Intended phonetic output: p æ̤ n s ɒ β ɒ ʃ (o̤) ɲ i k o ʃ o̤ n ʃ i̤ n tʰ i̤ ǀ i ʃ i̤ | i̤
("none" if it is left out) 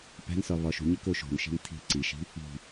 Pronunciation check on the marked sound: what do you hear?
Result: ṳ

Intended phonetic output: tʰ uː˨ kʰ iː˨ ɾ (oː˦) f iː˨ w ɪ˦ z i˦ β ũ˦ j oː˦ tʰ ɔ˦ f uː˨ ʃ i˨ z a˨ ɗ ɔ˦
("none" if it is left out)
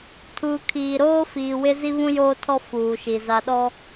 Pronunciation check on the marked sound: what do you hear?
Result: oː˦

